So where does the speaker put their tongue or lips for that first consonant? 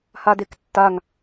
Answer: throat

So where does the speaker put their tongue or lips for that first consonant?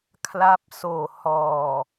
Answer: velum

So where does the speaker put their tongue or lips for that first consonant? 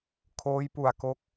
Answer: velum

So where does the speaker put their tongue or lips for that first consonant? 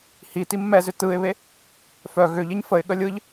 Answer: throat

